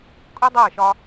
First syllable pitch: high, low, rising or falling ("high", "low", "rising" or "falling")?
high